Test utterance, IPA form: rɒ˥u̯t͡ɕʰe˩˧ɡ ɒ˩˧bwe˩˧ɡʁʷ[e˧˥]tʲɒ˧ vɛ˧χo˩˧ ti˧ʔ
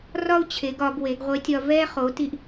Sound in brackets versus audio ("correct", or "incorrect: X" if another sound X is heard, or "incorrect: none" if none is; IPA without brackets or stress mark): correct